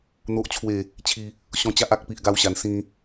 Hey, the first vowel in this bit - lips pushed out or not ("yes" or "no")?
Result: yes